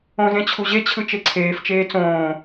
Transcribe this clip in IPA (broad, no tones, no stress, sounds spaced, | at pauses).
õ z ẽ t͡ɕʰ u ʑ e t͡ɕʰ ɯ t͡ʃ e ǀʰ eː f t͡ʃ eː t͡s õː